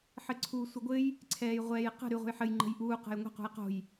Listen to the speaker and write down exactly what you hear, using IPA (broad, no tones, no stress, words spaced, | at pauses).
ħɘǀʰuːsʷəɡʷɘj | ǀʰɛːjʁʷɛːjqə̤ ɾyʁʷə̤jħɘj ŋ͡ǃə̤jʔuː qə̤jŋʷə̤ qṳjqo̤j